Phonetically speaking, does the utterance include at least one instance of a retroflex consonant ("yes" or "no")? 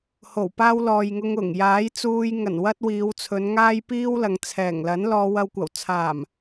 no